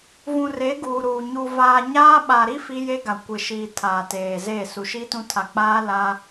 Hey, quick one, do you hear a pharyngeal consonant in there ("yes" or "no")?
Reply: no